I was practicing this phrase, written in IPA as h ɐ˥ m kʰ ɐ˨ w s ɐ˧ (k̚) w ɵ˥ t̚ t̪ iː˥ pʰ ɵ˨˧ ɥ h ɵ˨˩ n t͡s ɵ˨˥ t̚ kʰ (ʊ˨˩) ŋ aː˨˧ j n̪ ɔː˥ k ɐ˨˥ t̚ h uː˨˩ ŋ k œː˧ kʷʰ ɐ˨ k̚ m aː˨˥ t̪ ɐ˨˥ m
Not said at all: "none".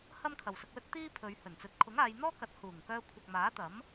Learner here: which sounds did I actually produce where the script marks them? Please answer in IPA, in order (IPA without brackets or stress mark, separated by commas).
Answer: k̚, ʊ˨˥